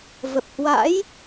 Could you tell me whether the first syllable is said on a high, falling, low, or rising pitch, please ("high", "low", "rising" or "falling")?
low